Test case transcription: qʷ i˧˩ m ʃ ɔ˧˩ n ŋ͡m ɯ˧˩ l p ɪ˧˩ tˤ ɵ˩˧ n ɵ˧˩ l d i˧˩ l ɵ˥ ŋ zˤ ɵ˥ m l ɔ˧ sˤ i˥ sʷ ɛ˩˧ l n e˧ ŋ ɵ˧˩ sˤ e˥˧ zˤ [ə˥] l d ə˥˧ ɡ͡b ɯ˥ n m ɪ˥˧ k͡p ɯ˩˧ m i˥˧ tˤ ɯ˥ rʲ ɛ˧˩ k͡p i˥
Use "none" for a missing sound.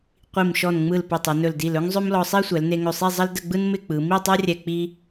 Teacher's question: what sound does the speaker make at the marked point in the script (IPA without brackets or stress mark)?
ə˥